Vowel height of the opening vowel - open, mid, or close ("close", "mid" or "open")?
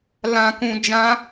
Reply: open